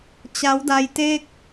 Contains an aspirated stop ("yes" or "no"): no